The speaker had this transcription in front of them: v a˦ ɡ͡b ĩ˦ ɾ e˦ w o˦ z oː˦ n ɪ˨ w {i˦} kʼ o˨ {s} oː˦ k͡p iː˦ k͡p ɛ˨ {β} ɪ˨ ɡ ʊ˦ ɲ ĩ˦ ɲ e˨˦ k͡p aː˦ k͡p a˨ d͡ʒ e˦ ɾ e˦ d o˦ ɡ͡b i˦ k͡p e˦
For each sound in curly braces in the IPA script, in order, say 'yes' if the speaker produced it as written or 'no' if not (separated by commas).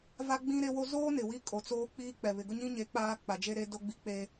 yes, no, yes